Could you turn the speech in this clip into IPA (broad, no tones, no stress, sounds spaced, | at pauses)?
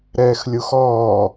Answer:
ɾ ɛː x lʲ u x ɔː